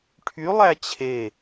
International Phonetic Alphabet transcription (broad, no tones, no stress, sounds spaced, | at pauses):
ʈʰ y lˠ æ t͡ɕʰ e